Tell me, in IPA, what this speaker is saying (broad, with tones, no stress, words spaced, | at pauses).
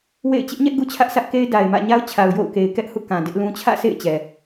wḛ˦˨ɪ̯ t͡ɕɪ˦ʔɲɛ˦ʔ ɡu˦t͡ɕʰä˦ʔsä˦ʔke˦ɪ̯ da˨ɪ̯mä̰˦˨ɲa˦ʊ̯t͡ɕʰa˨ʊ̯ jo̰˦˨ʊ̯ke˨ɪ̯kɛ˦ʔ hṵ˦˨kã˨ dɪ˦ʔlũ˦ t͡ɕʰä̰˦˨sʰḛ˦˨ɪ̯ t͡ɕɛ˨